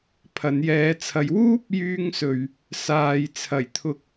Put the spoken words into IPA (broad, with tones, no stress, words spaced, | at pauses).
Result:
pʰɐ˨˧njɛː˨˧t͡sʰɐ˨˧j wuː˥p̚jyː˧ŋsɵ˨ɥ | saː˧j t͡sʰɐ˨˩jt̪ʰʊ˨k̚